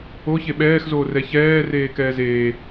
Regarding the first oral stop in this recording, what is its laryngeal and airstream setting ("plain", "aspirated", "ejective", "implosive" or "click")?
implosive